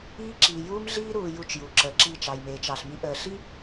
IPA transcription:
iː˦ ǁ iː˨ j uː˦ m ɮ iː˦ ɾ uː˨ j u˦˨ t͡ʃ j u˨ ǁ əː˨ ǁ i˦˨ t͡ʃ ɑ˨ j m eː˨ t͡ʃ ɑ˨ ɬ m i˦ ʔ əː˨ ɬ i˦

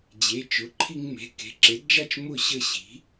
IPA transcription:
d͡ʑ e˩˧˩ t͡ʃ ʊ˩˧˩ ǃʰ i˧ ŋ m e̤˩˧˩ k e̤˩˧˩ ǁ e˩˥ d d͡ʒ a˥˩ t͡ʃ m ʊ˥˩ ɕ ə˥˩ ɕ i̤˩˥

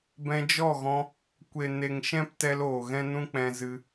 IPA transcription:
b ɛ̃˧ d͡ʒ ɔ˦˨ ɣ ɔ̃˧ | kʷ e˨ n e˨ ŋ ʃ ɛ̃˦ p t ɛ˧ l oː˨ ɣ ɛ̃˦ n ũ˦ k͡p ɛ̃˧ z ɨ˧

